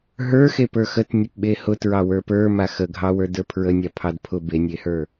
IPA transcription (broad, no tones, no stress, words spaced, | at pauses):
ɦə˞xepə˞ xətnʲəpɓe hʊtɹɑwə˞ pə˞ma xəɡʱɑwə˞də˞ pʰɹənʲapʰɑd pʰʊ benʲehə˞